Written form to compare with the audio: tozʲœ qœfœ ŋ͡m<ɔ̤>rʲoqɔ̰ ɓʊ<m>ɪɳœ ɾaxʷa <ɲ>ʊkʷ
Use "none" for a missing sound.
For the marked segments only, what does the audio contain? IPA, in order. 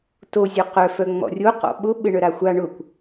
ɔ̰, ɓ, ɳ

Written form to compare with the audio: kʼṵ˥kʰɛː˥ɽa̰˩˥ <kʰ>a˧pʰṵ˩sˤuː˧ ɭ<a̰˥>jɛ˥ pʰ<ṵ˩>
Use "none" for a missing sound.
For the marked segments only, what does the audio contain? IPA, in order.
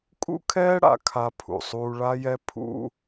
kʰ, a˥, ṵ˥

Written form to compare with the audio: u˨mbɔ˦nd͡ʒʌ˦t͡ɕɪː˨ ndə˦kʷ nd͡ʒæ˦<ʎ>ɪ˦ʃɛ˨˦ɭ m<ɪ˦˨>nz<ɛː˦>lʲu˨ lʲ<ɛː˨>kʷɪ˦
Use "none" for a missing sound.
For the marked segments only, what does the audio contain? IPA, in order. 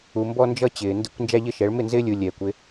ʎ, ɪ˦˨, ɪː˦, ɛː˨

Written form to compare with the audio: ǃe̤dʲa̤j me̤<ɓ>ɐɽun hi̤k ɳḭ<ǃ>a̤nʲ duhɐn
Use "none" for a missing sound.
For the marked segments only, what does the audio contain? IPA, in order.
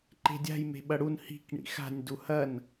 ɓ, x

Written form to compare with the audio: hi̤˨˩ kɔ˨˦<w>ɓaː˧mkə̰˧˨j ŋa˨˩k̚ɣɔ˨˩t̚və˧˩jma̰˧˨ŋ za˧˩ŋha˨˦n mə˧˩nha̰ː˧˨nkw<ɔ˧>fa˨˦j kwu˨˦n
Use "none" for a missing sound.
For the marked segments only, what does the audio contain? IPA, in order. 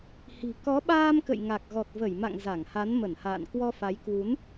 none, ɔ˧

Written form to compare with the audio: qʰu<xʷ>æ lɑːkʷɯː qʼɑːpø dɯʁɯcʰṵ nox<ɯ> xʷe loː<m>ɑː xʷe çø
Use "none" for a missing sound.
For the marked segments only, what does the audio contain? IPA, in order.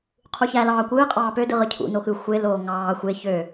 ç, ɯ, ŋ

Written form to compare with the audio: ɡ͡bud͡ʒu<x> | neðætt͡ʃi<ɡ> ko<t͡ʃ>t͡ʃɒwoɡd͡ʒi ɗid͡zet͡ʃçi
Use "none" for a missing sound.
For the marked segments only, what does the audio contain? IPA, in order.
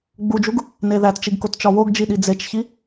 ɡ, ɡ, t

